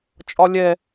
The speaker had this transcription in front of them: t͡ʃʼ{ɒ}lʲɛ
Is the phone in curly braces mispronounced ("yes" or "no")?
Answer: no